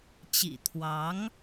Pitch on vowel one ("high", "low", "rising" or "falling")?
low